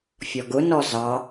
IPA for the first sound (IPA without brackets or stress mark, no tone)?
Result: fʲ